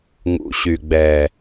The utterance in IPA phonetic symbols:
ŋ ṵ˨ ɕ y˨ ɡ͡b ɛ˨

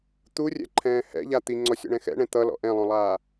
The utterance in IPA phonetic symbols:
t̪ u rʲ ɛ̰ ǃʰ ɛ̃ː h ɛ̰ ʎ a t̪ i ŋ͡ǀ ɔ sʲ ɔ̰ ɳ ɛ̃ x ɛ̰ ɳ ɛ̃ t̪ ʌ l ɔ̰ ʔ ɛ̃ lˠ õ lˠ aː

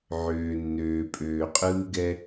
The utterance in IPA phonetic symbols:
ʕ øː˨ nː øː˨ pʼ øː˨ qʼ ɯː˦ ɡ ɛ˦

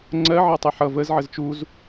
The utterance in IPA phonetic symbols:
ŋ͡ǀ ɜ ʕ ɜ tˤ ɪ ħ ʌ v ə z ʕ ə z t͡ʃ u z

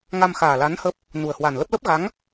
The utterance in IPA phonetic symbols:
ŋ a˧ m x aː˨˩ l a˨˦ n h ə˦˥ p̚ | n u˨˩ ə̯ h w a˨˩ n l ə˦˥ p̚ l ə˦˥ p̚ ɣ a˨˦ ŋ

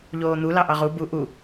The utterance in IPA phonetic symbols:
ʎ oː n̪ u l ɑ ʔ ɑ ʁ u b u ʔ u

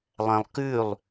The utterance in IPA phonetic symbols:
lˠ ɛ̃ lˠ k ʉ lˠ

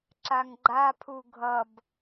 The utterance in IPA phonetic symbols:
ǁ a ŋ ɡ͡ǃ a pʰ u ɡʱ ʌ b

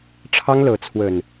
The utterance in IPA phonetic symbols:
ʈ͡ʂʰ ɑ˦ ŋ l ɤ˨˦ t͡sʰ w ə˨˩ n

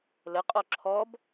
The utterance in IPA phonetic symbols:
l ə qʼ ɔ ǁʰ ɔ b

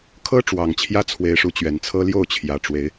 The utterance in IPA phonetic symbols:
kʰ ɤ˦ ʈ͡ʂ w ɑ˨˩ ŋ t͡ɕʰ j ä˦ t͡sʰ w e˨˦ ɪ̯ ʂ u˨˦ t͡ɕ ɥ ɛ˨˩ n t͡sʰ ɤ˦ l j o˥˨ ʊ̯ t͡ɕʰ j ä˨˩ ʈ͡ʂ w e˨˦ ɪ̯

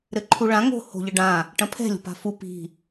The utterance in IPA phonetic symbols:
ɾ ɘ ǃʰ u ɭ ã ŋ o̤ h o̤ ʎ ɘ ɖ ã | ʈ ɐ̃ pʰ ɛ̤ lʲ o̤ p a̤ f u p i̤

